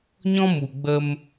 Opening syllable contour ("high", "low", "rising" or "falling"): high